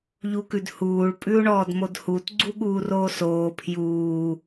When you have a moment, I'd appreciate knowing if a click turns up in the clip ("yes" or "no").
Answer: yes